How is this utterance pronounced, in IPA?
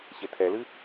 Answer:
ɕ e tʰ ɛ l ɨ

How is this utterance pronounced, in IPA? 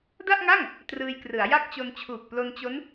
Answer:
d a˥˩ ʔ ŋ a˥˩ ŋ | t r ɯː˧ j k r ɯ˩˦ a̯ j a˦˥ k̚ t͡ɕ o˧ n t͡ɕʰ uː˨˩ k̚ p l o˧ n t͡ɕ o˦˥ n

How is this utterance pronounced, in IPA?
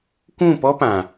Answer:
kʷ ũ˦˨ p ɔ˦ p ã˨

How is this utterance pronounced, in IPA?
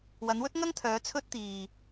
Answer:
w ɐ˨˧ n w ɵ˥ t̚ ŋ ɐ˥ ŋ t̪ʰ œː˨˧ t͡sʰ ɵ˥ t̚ t̪ iː˨

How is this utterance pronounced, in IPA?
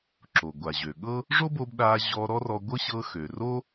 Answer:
ǁ o˩ ɡʷ a˩ ʑ ø˩ ɠ ɤ˥ | ʐ o˥ b o˧ b ɗ a˧ ʑ ɔ˧ ɾ ɔ˥ r ɔ˧ ɡʷ ɤ˥ ɕ ɤ˧ x ø˩ r o˥

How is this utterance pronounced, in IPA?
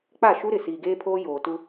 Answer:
k͡p a˦˨ ʃ u˦ ɾ ɪ˨ s iː˨ ɡ eː˦ pʰ oː˦ j oː˨ t u˦

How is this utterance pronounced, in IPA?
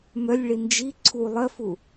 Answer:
m œ lʲ ɭ i n d͡ʒ i ǀʰ u lˠ ɜ f u

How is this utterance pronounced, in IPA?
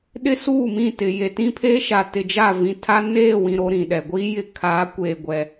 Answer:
ɗ ɪ˦ s uː˦˨ m ĩ˦˨ t ɪ˨ j e˨ t ĩ˦ pʰ eː˦ ʃ a˨ t ɪ˨ d͡ʒ a˦˨ v ĩ˨ tʰ a˦ n eː˦˨ w ĩ˨ ɾ o˦ ɾ ĩ˨ ɗ ɛ˨ ɡʷ i˦ j ɪ˦ kʰ a˨˦ kʷ eː˨ ɡʷ ɛ˨

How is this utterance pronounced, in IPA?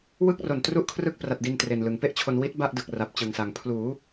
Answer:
w ɯ˥˩ k̚ r o˨˩ n t r u˥˩ ʔ kʰ r ɯ˥˩ k̚ p r a˨˩ t̚ d i˧ n t r e˨˩ n l ɯ˩˦ ŋ p e˥˩ ʔ t͡ɕʰ o˧ n w i˦˥ t̚ b a˥˩ ʔ d ɯ˨˩ k̚ r a˨˩ p̚ t͡ɕ ɯ˨˩ ŋ s a˨˩ ŋ pʰ l uː˩˦

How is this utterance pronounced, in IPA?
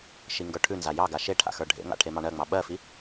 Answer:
ʃ i ŋ ɡ ə˞ ʈʰ ʉ n z a j ɑ ɡ a ʃ e ʈʰ a̰ x ə˞ ɖʱ ḛ ŋ a̰ ʈʰ e m ɑ ɳ ɜ ŋ͡m ɑ ɓ ɜ f i

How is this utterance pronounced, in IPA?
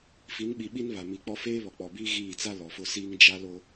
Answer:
f i˨˦ n ɓ i˨ ɓ i˦ n β a˨ m i˨ k͡p ɔ˦ f eː˦ β ɔ˨ k͡p ɔ˨ b iː˦ ɣ iː˦˨ t͡s a˦ l ɔ˨ f ʊ˦ s iː˦ ŋ d͡ʒ a˦ l o˦

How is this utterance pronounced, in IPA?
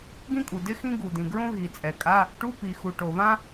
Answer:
ɡ ĩ˥ kʼ u˩ d ɪ˥ x ĩ˥ ɡ u˩ d ĩ˩ ɡ ɹ õ˥ ɣ i˩ t͡sʼ ɛ˩ kʼ a˧˥˧ | ʈ u˧˥˧ p i˩ x u˩ ʈ o˩ β ã˥

